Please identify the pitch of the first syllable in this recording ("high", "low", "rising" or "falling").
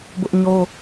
high